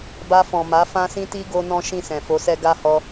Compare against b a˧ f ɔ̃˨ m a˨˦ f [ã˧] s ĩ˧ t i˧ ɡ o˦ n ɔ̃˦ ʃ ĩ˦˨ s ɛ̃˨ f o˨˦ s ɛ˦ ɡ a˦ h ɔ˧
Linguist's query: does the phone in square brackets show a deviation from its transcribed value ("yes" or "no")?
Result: no